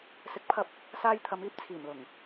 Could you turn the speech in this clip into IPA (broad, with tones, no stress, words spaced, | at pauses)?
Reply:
sɪ˨˥k̚pʰɐ˧p̚ | saː˧jt̪ʰɐ˨˧miː˧p̚ t͡sʰiː˨˩mlʊ˨˩ŋ